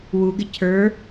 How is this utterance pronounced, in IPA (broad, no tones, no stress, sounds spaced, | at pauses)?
w u ɡ ɪ cʰ ə˞